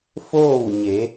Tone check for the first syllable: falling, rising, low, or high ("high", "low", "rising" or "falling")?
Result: falling